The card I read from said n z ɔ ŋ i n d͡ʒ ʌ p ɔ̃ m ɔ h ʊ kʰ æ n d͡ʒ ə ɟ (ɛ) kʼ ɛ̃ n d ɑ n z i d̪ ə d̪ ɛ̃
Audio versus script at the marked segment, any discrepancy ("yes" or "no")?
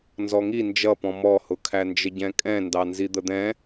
yes